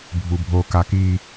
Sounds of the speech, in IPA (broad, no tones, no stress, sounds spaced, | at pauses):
bʱ u bʱ o k a k i